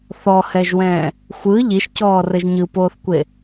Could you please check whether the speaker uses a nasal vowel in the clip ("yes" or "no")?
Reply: yes